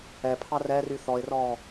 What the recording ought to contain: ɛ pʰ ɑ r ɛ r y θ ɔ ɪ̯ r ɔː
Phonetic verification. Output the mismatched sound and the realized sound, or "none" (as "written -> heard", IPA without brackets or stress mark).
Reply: none